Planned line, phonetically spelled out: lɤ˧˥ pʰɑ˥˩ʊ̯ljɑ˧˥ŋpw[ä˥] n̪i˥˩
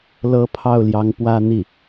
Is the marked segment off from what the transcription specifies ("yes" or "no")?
no